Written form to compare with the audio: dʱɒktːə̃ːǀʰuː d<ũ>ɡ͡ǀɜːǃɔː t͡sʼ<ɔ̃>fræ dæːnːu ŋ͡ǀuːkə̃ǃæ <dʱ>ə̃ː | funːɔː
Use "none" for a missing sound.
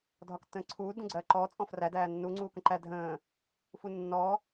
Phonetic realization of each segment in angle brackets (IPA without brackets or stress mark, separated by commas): ũ, ɔ̃, dʱ